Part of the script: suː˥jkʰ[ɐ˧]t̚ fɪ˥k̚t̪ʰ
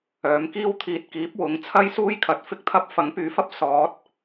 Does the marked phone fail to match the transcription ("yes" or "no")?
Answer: yes